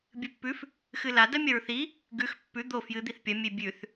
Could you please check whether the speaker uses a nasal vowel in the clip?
no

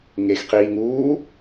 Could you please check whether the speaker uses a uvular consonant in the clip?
yes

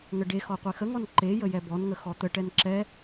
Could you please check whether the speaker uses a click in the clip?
yes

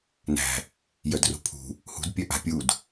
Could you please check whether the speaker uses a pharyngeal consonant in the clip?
no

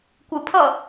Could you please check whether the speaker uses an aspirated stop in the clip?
yes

